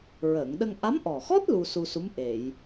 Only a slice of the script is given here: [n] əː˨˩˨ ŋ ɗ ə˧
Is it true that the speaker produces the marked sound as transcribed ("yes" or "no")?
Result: no